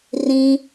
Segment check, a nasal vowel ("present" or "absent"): present